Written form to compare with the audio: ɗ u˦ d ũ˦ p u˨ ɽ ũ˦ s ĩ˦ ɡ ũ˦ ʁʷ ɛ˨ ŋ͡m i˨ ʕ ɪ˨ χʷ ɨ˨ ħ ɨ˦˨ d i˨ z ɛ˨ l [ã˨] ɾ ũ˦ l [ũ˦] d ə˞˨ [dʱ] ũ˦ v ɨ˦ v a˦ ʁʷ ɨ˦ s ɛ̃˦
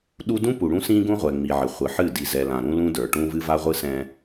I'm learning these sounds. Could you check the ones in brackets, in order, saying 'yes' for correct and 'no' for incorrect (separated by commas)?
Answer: yes, yes, no